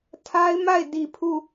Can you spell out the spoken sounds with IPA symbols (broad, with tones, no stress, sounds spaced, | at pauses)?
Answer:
tʰ a˦ ɪ̯ m a˦˨ ɪ̯ d i˨ pʰ u˦˨